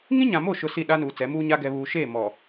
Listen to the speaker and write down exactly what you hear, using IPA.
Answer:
ŋ ĩ˦ ɲ ã˨ m o˦˨ ʃ ʊ˦ s i˦˨ ɗ a˦ n uː˨ t͡s ɛ˨˦ m uː˦ ɲ a˦ ɡ ɛ˨ β uː˨ ʃ eː˦˨ m ɔ˨

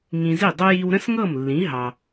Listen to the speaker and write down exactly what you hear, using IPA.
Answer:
ŋ ĩ˧ z i˥˩ dˤ ʊ˥ j i˧ w ɾ ə̃˥ s ŋ ɤ˥˩ m lː ĩ˩˥ ɦ ɑ˩

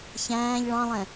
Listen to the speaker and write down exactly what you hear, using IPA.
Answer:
ç æ̃ː ʎ ɭ ɑ̃ lˠ ɛ̃

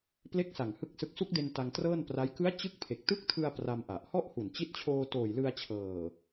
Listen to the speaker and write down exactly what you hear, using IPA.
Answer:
p l e˦˥ k̚ s a˨˩ ŋ h ɯ˥˩ k̚ s ɯ˦˥ k̚ s u˦˥ k̚ d e˧ n t a˧ ŋ t r ɤː˥˩ n p r a˦˥ j k ɯ˦˥ a̯ t͡ɕ ɯ˦˥ k̚ pʰ e˨˩ k̚ t ɯ˦˥ k̚ tʰ ɯ˧ a̯ p r a˧ m ʔ a˨˩ ʔ h ɔ˥˩ ʔ h u˨˩ n t͡ɕ i˦˥ t̚ t͡ɕʰ oː˧ t oː˨˩ j l ɯ˧ a̯ t͡ɕʰ ɤː˨˩

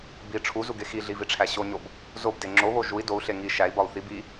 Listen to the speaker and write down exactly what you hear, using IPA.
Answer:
b i ʈ͡ʂʰ u z u ɡ e x i ɮ i v i ʈ͡ʂʰ æ ɕ o ɲ o b | z o b d e ŋ͡ǁ o β o ʒ u i̯ d o u̯ ɬ e ŋ i ʃ æ i̯ b ɒ u̯ θ i b i

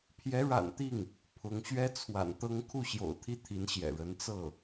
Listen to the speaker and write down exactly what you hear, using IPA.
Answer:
pʰ j ɛ˧˥ ɻ a̰˨˩ n t̪ i˥˩ ŋ | pʰ ʊ˧˥ ŋ ɕ ɥ ɛ˥ t͡sʰ w a̰˨˩ n t̪ ɤ˥ ŋ kʰ u˥˩ ɕ j o̰˨˩ ʊ̯ t̪ʰ i˥˩ t̪ʰ i˧˥ n ɕ j ɛ̰˨˩ ɻ ə˧˥ n t͡s ɤ˥˩

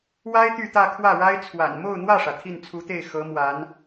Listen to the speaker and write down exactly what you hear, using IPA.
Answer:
w a˥ ɪ̯ t̪ y˥˧ t̪ ä˥˧ kʰ w ä˥˩ ɻ a˥ ɪ̯ t͡sʰ w a̰˨˩ n m o˥˧ ʊ̯ n̪ w ä˥˩ ʂ ä˩ t̪ʰ i˥˩ n t͡sʰ u˧˥ t̪ e˥˩ ɪ̯ x ɤ˧˥ m w a˧˥ n

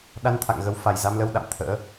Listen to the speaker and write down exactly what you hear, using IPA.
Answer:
ɗ a˧ n t̪ʰ a̰˧˨ ŋ ɣ ə˨˦ w f a˨˩ j z a˧ m l ə˧ w ɗ a̰˧˨ m t̪ʰ ə̰ː˧˥

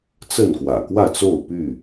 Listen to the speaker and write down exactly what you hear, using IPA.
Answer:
t͡s ə˥˨ n k w ä̰˨˩ k w ä˥˨ t͡s o˥˨ ʊ̯ p y˥˨

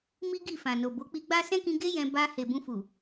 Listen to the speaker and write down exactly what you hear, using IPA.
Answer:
m i˦ ɡ i˦˨ f ã˨ n o˨ b o˨˦ k͡p i˧ ɡ͡b a˦ s ɛ̃˦ k ĩ˧ ɡ e˦ j ɛ̃˧ b a˧ h e˨ b ũ˧ f u˨

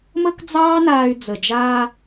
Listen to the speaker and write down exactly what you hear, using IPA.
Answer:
m ə˥ k d͡z ɑː˥ n aː˧ y̯ d͡z ə˩ d͡ʒ aː˧

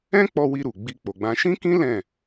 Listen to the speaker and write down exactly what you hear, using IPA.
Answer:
ɛ̃˦ k͡p ɔ˧ w i˧ ɾ u˨ ɡ͡b i˧ k͡p o˨ ɡ͡b ã˧ ʃ ĩ˦ k ĩ˦ l ɛ̃˦˨

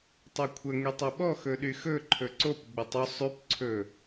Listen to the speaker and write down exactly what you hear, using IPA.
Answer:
tˤ o kʷʰ ə ŋ y tˤ ɵ ɓ ɔ x ɵ ɗ y x ɵ ǃʰ ɵ ǀ o p ɡ͡b ə tˤ ɵ sˤ y p ǀʰ ɵ

